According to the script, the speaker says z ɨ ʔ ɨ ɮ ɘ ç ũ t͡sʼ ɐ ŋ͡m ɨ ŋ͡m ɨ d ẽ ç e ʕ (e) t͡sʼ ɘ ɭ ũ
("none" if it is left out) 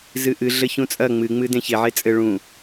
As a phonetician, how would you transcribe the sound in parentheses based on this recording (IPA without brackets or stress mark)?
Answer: e